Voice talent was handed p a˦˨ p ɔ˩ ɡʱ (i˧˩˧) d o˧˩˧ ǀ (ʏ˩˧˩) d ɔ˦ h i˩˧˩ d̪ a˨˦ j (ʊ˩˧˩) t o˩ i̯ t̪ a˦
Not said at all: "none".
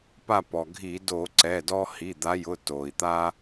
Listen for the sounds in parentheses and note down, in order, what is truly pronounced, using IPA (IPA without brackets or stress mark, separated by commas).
i˧˩˧, ɛ˩˧˩, ʊ˩˧˩